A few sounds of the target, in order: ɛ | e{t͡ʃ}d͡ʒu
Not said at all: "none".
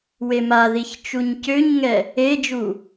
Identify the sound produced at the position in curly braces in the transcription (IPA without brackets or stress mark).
none